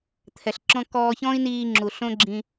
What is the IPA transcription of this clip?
t̪ʰ ɛ˨ ɬ ǁ ɔ̃˦ k ɔː˧ ç ɔ̃ː˦ i̯ n iː˧ ŋ͡ǁ u˨ ɬ õ˦ ɡ͡ǁ ĩ˧

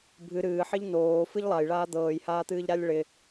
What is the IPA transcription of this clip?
bʱ ɨ ɾ ɨː ħ ɪ ʎ n oː f ɨ ʎ lˠ a j ɭ aː d̪ ɤː j h aː t̪ ɨː ʎ ɾ a lʲ ɭ ɪ

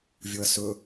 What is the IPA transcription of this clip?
vʲ o ɐ̯ s ɵ

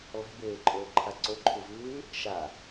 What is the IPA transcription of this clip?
lˠ e̤ b eː ǃʼ ɵː ǃʰ a ǀ o ǃʰ u v ʉː | ʃ a

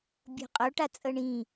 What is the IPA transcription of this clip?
bʲ o̤ qʼ o ʈ a t͡sʼ ɤ ɳ ĩ

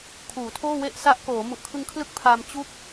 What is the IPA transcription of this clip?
kʰ uː˩˦ tʰ oː˥˩ w e˥˩ ʔ s a˦˥ ʔ k oː˩˦ m u˨˩ ʔ kʰ ɯ˧ ŋ kʰ l ɯ˦˥ k̚ pʰ a˧ m t͡ɕ u˥˩ k̚

